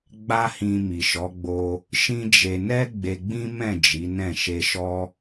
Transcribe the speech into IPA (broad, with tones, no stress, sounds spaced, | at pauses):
ɡ͡b a˦ h ĩ˧ m i˨ ʃ ɔ˨˦ ɡ͡b o˧ | ʃ ĩ˦ d͡ʒ e˧ n ɛ˦ ɡ͡b e˧ ɡ͡b ĩ˦ m ɛ̃˦˨ d͡ʒ i˨˦ n ɛ̃˦˨ ʃ e˧ ʃ ɔ˦